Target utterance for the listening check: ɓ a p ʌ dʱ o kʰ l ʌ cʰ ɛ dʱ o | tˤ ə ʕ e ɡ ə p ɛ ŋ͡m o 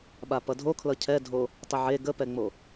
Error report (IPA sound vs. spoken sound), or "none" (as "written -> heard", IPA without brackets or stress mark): none